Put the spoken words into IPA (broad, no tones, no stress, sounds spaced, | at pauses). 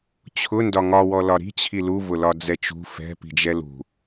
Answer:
t͡ɕʰ ʊ n d ɒ ŋ ɒ w ɔ l ɒ ɾ i̤ t͡ɕʰ i l u v ʊ l ɒ d͡z ɛ t͡ʃ ṳ f ɛ̤ p i̤ d͡ʒ ɛ l ṳ